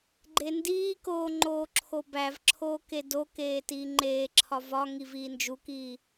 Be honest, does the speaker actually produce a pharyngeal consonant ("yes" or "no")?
no